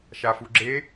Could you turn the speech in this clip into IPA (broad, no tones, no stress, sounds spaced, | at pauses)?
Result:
ʃ a f u ɡ͡ǁ e